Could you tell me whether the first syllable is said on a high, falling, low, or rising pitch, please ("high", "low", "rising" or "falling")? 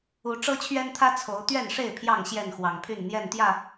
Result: rising